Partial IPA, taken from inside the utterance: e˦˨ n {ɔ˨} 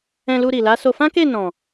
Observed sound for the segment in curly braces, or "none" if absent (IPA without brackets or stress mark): ɔ̃˨